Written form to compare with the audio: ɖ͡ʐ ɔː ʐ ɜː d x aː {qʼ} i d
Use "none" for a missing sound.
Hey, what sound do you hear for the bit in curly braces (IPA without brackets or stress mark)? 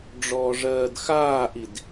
ʔ